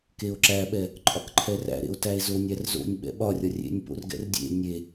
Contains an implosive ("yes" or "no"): yes